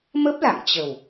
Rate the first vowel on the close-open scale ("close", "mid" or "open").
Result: mid